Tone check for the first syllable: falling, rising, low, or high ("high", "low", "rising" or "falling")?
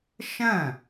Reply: falling